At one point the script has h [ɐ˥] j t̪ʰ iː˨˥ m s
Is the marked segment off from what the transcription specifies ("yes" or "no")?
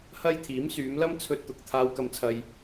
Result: no